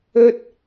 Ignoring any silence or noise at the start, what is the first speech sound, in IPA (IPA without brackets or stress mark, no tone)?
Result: ɵ